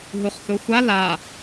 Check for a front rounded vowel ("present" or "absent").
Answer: absent